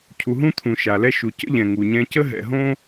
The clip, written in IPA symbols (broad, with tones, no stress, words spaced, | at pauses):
cʰu˩ɦũ˦t̪ʰũ˩ ʃa˩lɛ˦ ʃu˩ cə̰˥ʎɛ̃˩ ŋu˩ɲɛ̃˦ cə˥ ɦɛ̰˨ɦõ˥